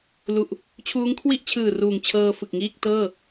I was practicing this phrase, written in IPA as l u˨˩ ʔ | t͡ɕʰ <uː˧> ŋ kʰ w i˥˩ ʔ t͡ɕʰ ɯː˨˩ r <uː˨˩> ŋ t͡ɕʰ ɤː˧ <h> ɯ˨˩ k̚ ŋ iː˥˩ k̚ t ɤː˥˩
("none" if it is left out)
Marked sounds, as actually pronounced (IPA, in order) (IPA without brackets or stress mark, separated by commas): uː˦˥, uː˨˩, f